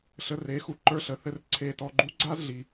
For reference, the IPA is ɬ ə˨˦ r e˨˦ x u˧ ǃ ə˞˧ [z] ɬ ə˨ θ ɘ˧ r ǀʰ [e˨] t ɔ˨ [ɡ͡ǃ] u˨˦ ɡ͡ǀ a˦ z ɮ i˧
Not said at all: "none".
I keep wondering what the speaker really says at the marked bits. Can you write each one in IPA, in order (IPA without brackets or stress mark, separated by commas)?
none, e˨, ɡ͡ǃ